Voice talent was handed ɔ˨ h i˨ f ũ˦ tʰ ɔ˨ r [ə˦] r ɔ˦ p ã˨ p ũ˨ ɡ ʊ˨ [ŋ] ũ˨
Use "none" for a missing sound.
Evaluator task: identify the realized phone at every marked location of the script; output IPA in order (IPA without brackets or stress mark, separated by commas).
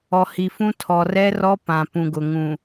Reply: ɛ˦, ŋ